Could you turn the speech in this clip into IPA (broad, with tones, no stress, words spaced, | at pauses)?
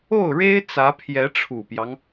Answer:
o˥˩ʊ̯ɻe˥ɪ̯ t͡sä˧˥pʰjɛ˧˥ʈ͡ʂʰu˨˩pjɑ˦ŋ